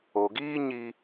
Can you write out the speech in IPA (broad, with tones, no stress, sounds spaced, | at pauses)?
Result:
o˨ ɡ iː˦ ɲ i˧